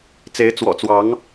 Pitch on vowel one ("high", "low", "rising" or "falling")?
rising